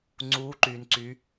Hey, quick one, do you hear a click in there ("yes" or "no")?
yes